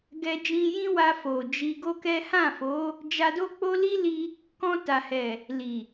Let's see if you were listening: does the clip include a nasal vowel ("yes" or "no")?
yes